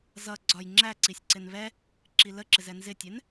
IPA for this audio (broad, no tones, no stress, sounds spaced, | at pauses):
z ʌ ɡ͡ǀ ɒ j ŋ͡ǁ æ ǀ i sʲ ǀ ɪ n β ɛ | ǁ i l ə ǁ ɪ z ɛ n z ɪ tʲ ɛ n